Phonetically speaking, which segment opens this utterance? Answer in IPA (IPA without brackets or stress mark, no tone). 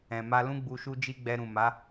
ɛ̃